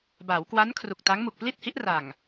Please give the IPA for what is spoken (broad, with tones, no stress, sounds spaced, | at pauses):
b a˩˦ w k w a˦˥ n kʰ r u˨˩ k̚ t a˦˥ ŋ m u˨˩ k̚ p l i˥˩ t̚ h i˦˥ ʔ r a˨˩ ŋ